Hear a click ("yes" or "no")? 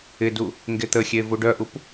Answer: no